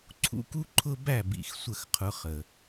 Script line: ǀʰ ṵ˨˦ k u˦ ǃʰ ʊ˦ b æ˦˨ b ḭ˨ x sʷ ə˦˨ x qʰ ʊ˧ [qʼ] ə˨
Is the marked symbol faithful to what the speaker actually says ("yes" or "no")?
no